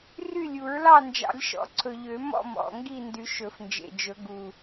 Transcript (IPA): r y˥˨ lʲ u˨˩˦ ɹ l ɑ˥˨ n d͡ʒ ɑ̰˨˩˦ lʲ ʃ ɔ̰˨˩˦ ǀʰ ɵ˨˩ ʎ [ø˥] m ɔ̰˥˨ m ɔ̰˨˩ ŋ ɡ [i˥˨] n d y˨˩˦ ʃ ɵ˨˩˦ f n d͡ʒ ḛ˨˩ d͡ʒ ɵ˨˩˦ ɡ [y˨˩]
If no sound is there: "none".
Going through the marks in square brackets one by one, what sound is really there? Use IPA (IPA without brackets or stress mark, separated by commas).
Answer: ø˨˩˦, i˥˨, u˨˩